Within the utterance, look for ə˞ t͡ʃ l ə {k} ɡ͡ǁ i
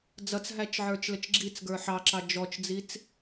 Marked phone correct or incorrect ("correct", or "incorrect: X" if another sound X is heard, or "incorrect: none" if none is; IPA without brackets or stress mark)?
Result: incorrect: t͡ʃ